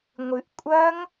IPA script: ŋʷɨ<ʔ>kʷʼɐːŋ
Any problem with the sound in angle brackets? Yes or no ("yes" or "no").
no